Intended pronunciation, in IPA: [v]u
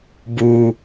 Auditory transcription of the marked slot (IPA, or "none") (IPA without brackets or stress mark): b